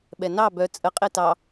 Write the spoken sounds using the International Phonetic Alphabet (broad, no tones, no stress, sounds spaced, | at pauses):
ɓ ɛ n ɑ b œ t͡sʼ ə qʼ e t ɑ